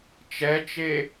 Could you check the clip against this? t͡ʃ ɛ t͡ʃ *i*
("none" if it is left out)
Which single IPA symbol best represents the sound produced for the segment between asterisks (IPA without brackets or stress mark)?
e